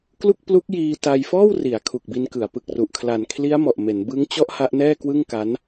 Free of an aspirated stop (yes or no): no